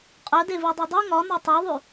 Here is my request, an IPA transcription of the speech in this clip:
qʼœdevidˤœ dˤu ŋɒnɒ tˤuðˤʉ

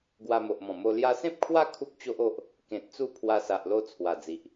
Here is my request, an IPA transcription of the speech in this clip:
ɡwa˧mo˨ʔmɔ̃˨˩mo˧ lja˧sẽ˦p̚kʰwa˦ kʰu˦k̚t͡ɕo˦ʔ o˦ʔ | kẽ˨t̚t͡su˦pʰwa˧ sa˨ʔlo˧ t͡sʰwa˨˩d͡zi˨ʔ

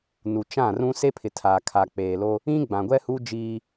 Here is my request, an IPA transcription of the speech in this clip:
nu˨t͡ʃã˦˨rũ˦ se˦pʰɪ˨ tʰaː˨kʰa˨k͡peː˨lo˦ | ĩ˦ɡ͡bã˨ɡʷɛ˦hu˦ d͡ʒiː˦

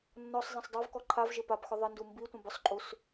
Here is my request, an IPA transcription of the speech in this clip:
nːɔsˤ zˤɛ̃sˤdˤovkɔ ǃʰavʒɪ papxʊ ðˤɪndu mbi tʷɛ̃bʊsˤǃʼus

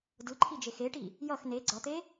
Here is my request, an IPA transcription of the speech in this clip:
dɯǃʰid͡ʒex eʈi | jʌx ne ɡ͡ǀʌt̪e

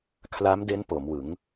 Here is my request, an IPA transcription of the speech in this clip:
kʰla˦˥mde˦˥n po˩˦mwɯ˩˦ŋ

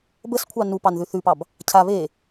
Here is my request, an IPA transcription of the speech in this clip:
bəskʷʰɑ nupɑnðʉ θʉpɑb | cʰa βe

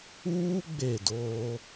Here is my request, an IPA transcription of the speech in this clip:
uː˦ ɡ͡be˦˨doː˦

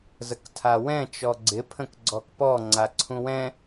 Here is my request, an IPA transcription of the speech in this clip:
zəktʰawɛ̃ t͡ʃɔɡ͡ǀɪ pʰə̃kɡ͡ǀɔkpɔ ŋ͡ǀaǀʰũwɛ̃

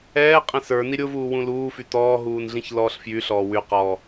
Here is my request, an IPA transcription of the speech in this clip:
ɛː qʼɛ̃sə˞ niɾʲʊ vuːwũluː fytɔː ɦuːnɮĩçlɔːɬfjy ɬɔːwyqɔː

